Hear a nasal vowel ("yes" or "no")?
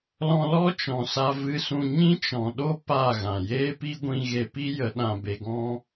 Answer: yes